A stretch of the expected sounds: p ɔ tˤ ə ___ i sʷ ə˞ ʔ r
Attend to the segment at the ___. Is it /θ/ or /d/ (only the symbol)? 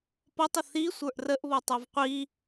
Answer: θ